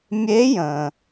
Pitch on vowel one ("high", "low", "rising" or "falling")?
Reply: rising